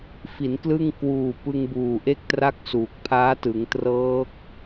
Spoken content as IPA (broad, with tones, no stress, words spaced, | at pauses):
fi˩˦nklɯ˥˩ŋ kwuː˨˩pɯ˧ŋbuː˨˩ ʔe˥˩k̚tra˥˩k̚suː˨˩k̚ pʰaː˦˥tɯ˩˦ŋtrɤː˦˥k̚